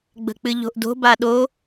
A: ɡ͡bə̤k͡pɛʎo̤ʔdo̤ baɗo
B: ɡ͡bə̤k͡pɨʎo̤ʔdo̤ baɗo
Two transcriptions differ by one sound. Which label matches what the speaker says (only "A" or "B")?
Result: B